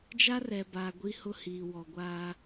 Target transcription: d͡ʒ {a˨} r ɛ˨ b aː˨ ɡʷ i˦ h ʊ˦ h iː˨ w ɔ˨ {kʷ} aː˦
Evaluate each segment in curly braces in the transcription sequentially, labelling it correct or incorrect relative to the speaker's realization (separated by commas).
incorrect, incorrect